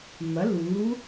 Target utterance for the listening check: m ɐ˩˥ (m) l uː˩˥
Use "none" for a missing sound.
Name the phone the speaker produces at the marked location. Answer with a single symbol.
none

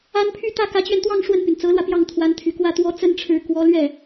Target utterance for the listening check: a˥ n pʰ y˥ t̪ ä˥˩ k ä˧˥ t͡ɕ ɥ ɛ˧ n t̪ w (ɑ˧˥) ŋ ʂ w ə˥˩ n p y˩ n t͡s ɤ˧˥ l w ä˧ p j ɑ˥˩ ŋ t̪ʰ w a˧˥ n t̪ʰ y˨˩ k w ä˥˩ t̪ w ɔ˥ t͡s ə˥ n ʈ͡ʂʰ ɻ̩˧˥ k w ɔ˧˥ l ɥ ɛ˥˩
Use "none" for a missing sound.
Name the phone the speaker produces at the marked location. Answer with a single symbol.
ɑ˥˧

